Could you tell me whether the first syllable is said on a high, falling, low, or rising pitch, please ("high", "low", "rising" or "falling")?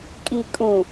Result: low